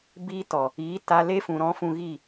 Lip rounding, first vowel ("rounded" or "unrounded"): unrounded